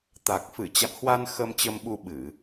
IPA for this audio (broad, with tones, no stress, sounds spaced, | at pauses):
t̪ a˨˩ k̚ f ɨ˧˩ t͡ɕ a̰˧˨ m h w a˧ n x ə˧ m t͡ɕ ə˧ m ɓ u˧ ɓ ɨ˧˩˨